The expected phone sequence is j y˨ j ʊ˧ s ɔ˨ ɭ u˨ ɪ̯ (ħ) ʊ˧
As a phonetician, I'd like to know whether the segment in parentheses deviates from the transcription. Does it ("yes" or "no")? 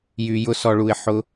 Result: no